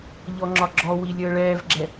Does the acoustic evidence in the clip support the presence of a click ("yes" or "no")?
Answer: yes